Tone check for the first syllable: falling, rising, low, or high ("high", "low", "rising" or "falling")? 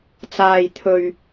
low